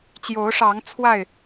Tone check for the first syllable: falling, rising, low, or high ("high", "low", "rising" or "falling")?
rising